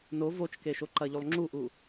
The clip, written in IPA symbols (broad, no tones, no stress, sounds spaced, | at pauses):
n o v o t͡ʃ k e ʃ o ǃ ɐ ʎ u lˠ ŋ͡ǁ u ʔ u